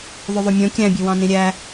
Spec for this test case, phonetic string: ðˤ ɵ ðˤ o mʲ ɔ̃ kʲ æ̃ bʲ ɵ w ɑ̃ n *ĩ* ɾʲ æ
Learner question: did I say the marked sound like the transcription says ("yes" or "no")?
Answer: yes